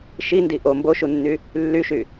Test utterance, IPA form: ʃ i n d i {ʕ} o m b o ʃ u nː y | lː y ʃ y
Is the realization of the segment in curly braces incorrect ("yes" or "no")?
yes